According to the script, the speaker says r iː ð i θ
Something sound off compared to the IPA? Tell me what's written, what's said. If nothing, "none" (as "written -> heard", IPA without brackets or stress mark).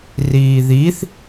none